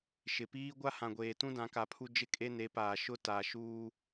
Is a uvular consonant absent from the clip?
yes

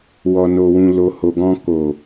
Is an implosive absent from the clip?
yes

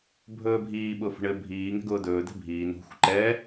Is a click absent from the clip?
no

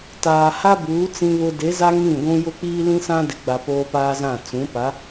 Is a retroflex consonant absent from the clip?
yes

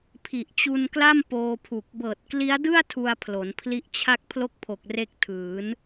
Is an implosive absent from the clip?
yes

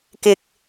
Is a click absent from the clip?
yes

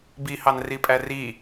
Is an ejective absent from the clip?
no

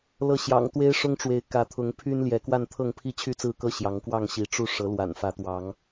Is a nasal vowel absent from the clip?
yes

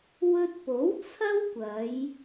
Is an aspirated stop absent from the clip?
no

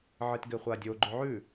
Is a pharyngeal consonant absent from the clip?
no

